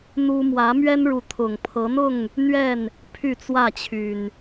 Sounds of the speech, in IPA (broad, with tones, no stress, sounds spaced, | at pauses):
n̪ u˦ m w ä˨˦ m ɥ ɛ˦ n ɻ u˨˦ t̪ʰ ʊ˨˩ ŋ pʰ ɤ˨˦ n̪ ʊ˥˨ ŋ | n̪ ɥ ɛ˥˨ n | pʰ y˥˨ t͡s w ä˥˨ t͡ɕʰ y˨˩ n